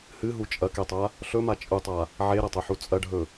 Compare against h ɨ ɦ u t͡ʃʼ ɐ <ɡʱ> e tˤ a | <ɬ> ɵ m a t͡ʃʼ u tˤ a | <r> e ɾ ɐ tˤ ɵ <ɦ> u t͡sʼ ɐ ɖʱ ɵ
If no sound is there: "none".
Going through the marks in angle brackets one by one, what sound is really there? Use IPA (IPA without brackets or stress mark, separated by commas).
k, ɬ, ʕ, ħ